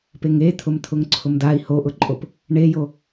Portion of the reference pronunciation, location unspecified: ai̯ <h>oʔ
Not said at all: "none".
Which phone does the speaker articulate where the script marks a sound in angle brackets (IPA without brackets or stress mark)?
h